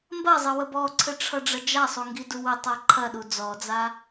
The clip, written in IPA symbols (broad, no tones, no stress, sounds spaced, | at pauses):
m b ɐ zˤ ɘ w ə b ɔ ǀʰ ɘ ʈ͡ʂʰ ʌ ɖ͡ʐ ɐ d͡ʒ a sˤ u ŋ ɡ i d u w ə tˤ a ǃʰ ɐ ɗ u d͡z ɔ d͡z a